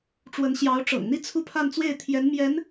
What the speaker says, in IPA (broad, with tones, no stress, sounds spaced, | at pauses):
ʈ͡ʂ w ə˧˥ n ɕ j ɑ˧˥ ʊ̯ ʈ͡ʂ ɤ̰˨˩ ŋ n̪ i˥˧ t͡sʰ u˥˧ pʰ a˥˧ n t͡s w e˥˩ ɪ̯ t̪ʰ j ɛ˧˥ n m j ɛ˧˥ n